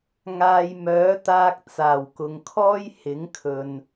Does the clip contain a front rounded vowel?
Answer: yes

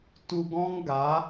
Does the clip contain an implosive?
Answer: no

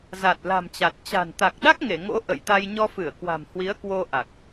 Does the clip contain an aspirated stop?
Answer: no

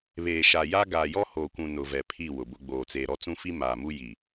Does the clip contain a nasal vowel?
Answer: yes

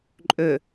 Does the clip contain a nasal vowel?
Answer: no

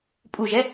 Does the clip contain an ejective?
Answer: yes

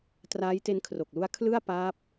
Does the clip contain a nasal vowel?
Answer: no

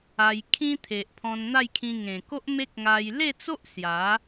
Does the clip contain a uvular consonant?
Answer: no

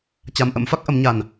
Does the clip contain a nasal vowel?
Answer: no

